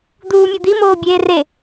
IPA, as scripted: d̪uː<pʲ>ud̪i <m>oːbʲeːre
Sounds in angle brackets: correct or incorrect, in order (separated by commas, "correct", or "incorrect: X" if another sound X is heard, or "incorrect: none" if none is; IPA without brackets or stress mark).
incorrect: mʲ, correct